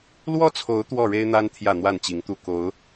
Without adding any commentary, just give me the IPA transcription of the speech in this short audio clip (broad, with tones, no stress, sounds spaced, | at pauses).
l w ɔ˦ t͡sʰ o˨˦ ʊ̯ t̪ w ɔ˥˨ ɻ e˦ ɪ̯ n̪ a˦ n t̪ʰ j ä˥˨ n̪ w a˥˨ n t͡ɕ i˨˦ ŋ t̪ u˥˨ k o˨˦ ʊ̯